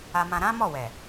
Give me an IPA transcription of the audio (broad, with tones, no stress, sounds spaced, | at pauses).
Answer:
a˧ m ã˧ ɾ ã˦ m ɔ˦˨ w ɛ˨